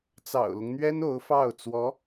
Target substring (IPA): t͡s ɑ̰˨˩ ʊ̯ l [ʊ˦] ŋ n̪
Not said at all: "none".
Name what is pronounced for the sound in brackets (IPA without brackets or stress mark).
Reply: ʊ˦